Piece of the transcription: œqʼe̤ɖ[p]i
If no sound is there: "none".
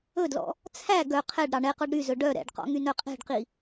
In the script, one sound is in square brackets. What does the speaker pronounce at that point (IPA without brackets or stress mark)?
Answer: q